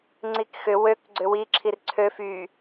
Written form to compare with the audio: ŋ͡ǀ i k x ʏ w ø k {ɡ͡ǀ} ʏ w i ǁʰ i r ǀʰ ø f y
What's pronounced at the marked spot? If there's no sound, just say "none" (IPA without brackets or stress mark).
ɡ͡ǀ